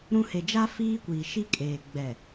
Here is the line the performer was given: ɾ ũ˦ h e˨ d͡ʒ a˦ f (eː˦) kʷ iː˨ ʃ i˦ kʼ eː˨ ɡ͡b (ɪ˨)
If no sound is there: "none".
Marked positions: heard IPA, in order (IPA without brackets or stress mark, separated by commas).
iː˦, ɛ˨